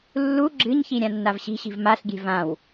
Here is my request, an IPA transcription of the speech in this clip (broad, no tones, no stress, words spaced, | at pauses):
lːu ɡ͡ǁɨɲçi ɾʲãnːavɕi̤ɕi̤v maɬɡʲe̤ vãw